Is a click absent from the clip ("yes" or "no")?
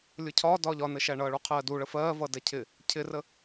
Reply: yes